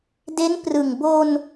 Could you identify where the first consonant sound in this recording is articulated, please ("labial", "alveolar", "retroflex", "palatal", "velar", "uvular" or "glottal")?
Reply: alveolar